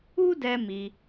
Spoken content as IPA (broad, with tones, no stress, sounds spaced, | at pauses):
u˦ d ɛ˧ m i˧